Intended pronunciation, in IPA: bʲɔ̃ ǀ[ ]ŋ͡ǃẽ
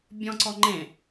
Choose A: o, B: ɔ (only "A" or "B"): B